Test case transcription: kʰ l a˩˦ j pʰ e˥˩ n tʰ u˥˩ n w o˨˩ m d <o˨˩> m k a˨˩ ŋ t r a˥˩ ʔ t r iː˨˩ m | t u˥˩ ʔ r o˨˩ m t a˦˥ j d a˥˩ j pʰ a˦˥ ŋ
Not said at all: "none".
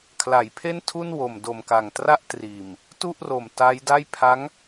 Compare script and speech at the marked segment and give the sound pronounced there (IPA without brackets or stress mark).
o˨˩